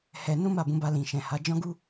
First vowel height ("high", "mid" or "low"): mid